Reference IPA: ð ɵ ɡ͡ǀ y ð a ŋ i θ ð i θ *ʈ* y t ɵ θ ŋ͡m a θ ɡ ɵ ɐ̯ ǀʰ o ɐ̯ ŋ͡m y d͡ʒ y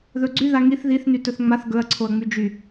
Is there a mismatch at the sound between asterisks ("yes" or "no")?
yes